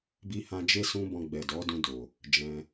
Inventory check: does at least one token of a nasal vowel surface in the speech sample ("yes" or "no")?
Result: yes